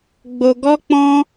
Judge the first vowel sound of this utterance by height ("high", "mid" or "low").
mid